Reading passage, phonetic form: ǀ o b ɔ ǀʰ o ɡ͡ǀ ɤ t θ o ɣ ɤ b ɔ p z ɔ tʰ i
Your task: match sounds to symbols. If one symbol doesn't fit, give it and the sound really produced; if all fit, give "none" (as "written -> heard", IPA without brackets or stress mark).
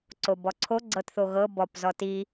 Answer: tʰ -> t